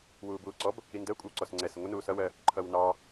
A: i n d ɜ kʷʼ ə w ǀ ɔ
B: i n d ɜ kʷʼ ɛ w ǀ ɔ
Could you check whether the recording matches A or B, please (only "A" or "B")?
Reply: A